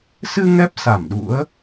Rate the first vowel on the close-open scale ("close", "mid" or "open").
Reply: close